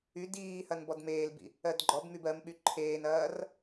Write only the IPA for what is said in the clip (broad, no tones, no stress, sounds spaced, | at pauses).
y d iː h ɐ n b ɔ d m eː l b ḭ | ɜ d ɡ͡ǃ ɔ b m y b ɜ m ɓ y ǃʰ eː n ɐː r